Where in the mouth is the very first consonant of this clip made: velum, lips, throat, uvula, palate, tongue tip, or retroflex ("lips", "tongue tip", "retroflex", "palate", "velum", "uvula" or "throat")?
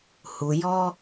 throat